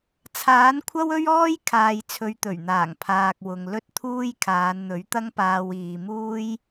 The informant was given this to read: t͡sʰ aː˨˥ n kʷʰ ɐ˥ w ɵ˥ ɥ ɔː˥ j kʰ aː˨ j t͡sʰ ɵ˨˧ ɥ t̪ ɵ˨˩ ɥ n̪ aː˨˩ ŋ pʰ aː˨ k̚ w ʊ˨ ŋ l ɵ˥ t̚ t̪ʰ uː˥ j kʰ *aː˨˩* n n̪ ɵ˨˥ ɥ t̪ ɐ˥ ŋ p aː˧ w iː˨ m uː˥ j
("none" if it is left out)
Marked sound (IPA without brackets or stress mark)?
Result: aː˨˧